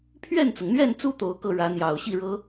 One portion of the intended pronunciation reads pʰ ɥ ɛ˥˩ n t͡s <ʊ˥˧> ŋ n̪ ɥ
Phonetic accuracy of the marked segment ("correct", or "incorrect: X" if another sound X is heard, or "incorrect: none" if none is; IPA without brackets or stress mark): incorrect: ʊ˩